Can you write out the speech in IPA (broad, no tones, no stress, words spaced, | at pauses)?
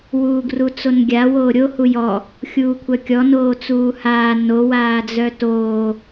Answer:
wuːɡrut͡sonɡʲa woːɾʲo hujɔ | xʲuːkʷʰœkʲɔ noːt͡suːhaː no waːd͡zœtoː